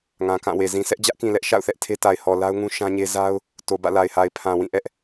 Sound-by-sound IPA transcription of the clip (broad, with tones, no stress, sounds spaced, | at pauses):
ŋ ã˨ k ã˦˨ w e˨ z ĩ˨ sʰ ɛ˦ ʔ d͡ʑ ä˦ ʔ k ĩ˨ l ɛ˦ ʔ ʃ a̰˦˨ ʊ̯ θ ɛ˦ ʔ tʰ e˦ t a˨ ɪ̯ h ɔ˨ l a˦ ʊ̯ ŋ ũ˦ ʃ ã˦ ɲ e˦ z a˦ ʊ̯ | t o˨ b ä̰˦˨ l a˨ ɪ̯ h a˨ ɪ̯ pʰ ã˨ w ĩ˦˨ ʔ ɛ˦ ʔ